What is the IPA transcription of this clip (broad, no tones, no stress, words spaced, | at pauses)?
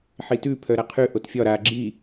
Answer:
ħitʉ pʰœɾaqʰʉ ʔotfʲɒ ɾa ɡ͡ǁi